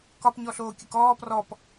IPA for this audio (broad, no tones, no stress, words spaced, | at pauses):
kɒpɲɔɬoː kʲəkɔː prɔp